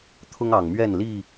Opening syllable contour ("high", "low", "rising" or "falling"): high